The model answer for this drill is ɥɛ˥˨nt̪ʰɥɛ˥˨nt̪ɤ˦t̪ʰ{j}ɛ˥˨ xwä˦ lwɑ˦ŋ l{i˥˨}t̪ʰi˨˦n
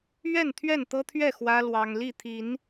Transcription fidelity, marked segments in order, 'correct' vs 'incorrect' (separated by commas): incorrect, correct